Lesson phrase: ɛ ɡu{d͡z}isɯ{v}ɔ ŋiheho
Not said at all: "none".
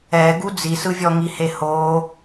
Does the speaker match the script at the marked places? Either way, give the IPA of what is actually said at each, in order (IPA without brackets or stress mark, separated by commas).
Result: d͡z, vʲ